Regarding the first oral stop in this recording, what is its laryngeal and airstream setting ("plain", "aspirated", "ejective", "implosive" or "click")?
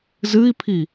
aspirated